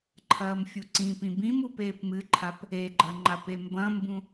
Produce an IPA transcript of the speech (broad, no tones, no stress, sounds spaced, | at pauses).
ǃʰ ɐː m fʲ u ǀ ĩ p ĩ b ĩ m u p eː p m ɨ ǃʰ a p | e ɡ͡ǃ ɐ ŋ͡ǃ a p e m b ɐ̃ m b ũ